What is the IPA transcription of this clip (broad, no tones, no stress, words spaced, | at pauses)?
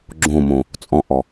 ɡ͡ǁõmõ | t͡sʼɔ̃ʔɔ